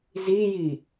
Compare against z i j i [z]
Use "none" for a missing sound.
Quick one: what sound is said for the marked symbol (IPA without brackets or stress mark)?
none